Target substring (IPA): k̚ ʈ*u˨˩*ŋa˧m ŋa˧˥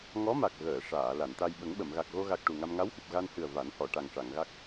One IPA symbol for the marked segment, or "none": u˨˩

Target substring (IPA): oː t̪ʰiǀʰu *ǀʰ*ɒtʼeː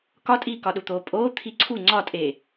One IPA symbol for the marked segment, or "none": ŋ͡ǀ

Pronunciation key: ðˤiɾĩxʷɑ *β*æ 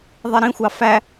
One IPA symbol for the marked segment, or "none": f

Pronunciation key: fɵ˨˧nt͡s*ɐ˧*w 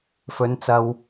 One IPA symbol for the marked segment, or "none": ɐ˧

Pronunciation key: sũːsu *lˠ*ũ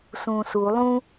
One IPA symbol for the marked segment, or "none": lˠ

